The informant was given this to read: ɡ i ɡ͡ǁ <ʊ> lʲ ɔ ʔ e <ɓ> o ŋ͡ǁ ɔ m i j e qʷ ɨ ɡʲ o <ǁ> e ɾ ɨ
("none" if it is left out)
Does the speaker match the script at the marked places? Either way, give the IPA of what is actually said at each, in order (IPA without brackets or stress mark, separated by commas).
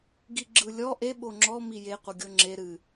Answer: ɯ, ɓ, ŋ͡ǁ